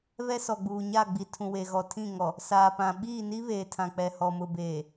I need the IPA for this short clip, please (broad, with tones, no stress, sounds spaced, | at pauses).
β ɛ˦ s ɔ˨ ɡ͡b uː˨ ɲ a˦˨ ɡ͡b i˨ tʰ ũ˨ w e˨ ɣ ɔ˨ tʰ ĩ˦˨ ŋ ɔ˨ | s aː˨ p ã˨ ɓ iː˦˨ n i˦ β eː˨ tʰ ã˨ k͡p ɛ˨ h ɔ˨ m ʊ˨ b eː˨